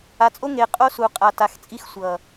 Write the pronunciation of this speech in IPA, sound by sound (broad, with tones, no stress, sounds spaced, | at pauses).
a˨ t͡sʼ o˦ ŋ e˨ qʼ o˦ s u˨ qʼ a˨ t a˨ x t͡sʼ i˦ x sʷ ʌ˨